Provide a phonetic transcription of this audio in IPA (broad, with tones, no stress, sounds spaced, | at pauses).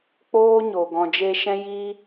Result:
k͡p oː˦ ɲ o˨ ɡ ɔ̃˨ d͡ʒ e˧ ʃ ɛ̃˦ j iː˦